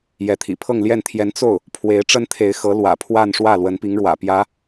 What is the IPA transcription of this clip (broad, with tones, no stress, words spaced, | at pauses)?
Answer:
jɛ˧˥t̪ʰḭ˨˩ pʰɤ˥˧ŋljɛ˥˩nt̪ʰjɛ˧˥n t͡so˥˩ʊ̯ | pʰwe˧˥ɪ̯ʈ͡ʂə˥nt̪ʰe˧˥ɪ̯xɤ˧˥ lwä̰˨˩pʰwa˥˧nʂwä˥˩ lwə˧˥npi˧˥ŋɻwä̰˨˩pjä˧˥